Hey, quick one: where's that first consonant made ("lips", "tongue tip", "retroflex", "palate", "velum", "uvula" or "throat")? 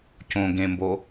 palate